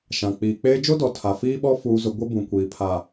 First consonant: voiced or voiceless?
voiceless